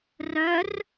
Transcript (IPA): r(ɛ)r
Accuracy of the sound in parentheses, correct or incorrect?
incorrect: œ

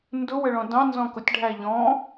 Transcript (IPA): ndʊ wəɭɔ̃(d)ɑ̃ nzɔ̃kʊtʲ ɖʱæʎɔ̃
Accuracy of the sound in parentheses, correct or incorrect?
correct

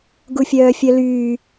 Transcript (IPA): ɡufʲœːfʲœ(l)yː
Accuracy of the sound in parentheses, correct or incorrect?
correct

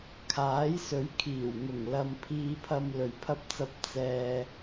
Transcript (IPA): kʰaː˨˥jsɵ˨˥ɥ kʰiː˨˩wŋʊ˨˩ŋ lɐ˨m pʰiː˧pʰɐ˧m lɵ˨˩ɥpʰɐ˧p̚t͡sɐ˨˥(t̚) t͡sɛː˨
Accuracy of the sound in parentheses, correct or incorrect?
incorrect: p̚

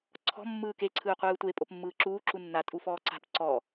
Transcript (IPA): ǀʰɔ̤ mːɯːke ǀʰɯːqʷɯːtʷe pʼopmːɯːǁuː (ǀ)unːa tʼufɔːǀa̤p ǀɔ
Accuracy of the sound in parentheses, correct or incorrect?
incorrect: ǁ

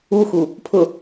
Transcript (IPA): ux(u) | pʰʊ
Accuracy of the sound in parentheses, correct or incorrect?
correct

